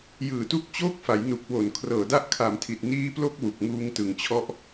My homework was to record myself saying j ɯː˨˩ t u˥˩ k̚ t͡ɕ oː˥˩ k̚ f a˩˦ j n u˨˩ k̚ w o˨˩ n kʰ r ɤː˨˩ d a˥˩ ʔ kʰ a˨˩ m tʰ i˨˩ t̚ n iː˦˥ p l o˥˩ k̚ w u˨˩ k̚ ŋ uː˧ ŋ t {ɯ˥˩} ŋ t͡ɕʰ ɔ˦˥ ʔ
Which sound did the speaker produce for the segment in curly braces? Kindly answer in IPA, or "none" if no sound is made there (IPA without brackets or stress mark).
ɯ˩˦